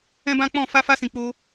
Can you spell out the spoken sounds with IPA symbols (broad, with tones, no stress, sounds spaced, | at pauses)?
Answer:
ɛ̃˦ b ã˦ k͡p ɔ̃˦˨ f a˧ f a˧ s ĩ˨ k͡p o˧